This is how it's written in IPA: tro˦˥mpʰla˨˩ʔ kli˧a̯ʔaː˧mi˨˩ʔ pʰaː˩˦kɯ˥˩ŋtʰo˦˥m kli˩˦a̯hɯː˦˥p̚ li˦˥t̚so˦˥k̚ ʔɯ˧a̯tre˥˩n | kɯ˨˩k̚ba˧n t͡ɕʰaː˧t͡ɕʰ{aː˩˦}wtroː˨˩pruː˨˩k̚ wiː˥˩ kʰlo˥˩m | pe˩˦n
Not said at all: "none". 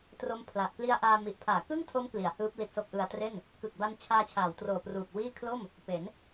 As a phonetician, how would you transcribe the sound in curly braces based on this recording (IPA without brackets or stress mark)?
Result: aː˩˦